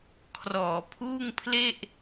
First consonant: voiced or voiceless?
voiceless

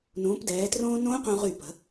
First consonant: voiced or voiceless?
voiced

